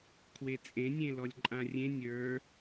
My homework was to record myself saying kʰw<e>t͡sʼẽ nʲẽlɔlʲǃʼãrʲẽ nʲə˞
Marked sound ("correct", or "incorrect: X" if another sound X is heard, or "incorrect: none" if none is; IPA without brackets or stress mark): correct